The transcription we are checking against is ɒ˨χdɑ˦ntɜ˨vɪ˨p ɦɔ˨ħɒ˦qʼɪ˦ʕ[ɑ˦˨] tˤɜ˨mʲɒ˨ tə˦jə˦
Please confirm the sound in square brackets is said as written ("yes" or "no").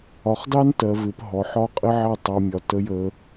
yes